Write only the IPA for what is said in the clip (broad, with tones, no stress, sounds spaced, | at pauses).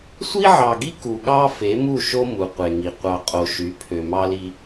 sʷ i˦ ʕ ɑ˨ ɡ i˦ k u˨ ɠ ɑ˦ f e˨˦ m u˦˨ ʃ o˦ m u˨ qʷ e˨ ŋ i˨ qʷ ɑ˨ qʼ o˨ ʃ y˨˦ pʰ ø˨ m ɑ˦ l i˦